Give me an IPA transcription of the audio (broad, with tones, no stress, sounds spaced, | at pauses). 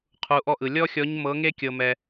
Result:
qʰ u˧˥ ʔ ɔ˥ ʔ ɯ˧ lʲ ɔ˥ xʲ ɔ˧˥ ɲ m ɤ˧˥ ŋ e˥ kʲ ɤ˧ m ɛ˧